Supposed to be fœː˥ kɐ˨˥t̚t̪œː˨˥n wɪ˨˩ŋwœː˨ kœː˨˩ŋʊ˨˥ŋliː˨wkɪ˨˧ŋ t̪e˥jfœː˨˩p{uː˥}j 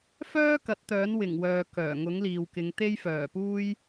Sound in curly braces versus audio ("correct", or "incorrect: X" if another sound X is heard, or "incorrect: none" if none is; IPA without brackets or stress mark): correct